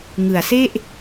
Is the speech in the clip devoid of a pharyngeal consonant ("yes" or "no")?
yes